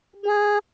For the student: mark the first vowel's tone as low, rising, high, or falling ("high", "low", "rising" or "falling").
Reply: high